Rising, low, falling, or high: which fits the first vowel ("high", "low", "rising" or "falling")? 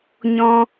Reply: high